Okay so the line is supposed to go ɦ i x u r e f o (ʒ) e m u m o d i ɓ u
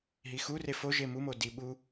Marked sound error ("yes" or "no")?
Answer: no